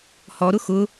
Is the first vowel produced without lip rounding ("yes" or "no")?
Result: no